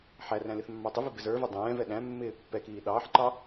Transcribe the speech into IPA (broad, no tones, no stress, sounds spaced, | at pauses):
ħ æ r æ̃ l ɪ θ mː ɑ tˤ ɪ v i b ɪ z ə˞ v ɛ dˤ ɛ̃ː v ɛ ɗ æ̃ mː ɪː pː ɛ k iː ɗ ɑː ħ ǃ ɑ